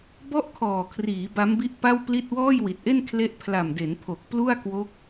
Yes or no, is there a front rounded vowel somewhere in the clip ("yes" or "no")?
no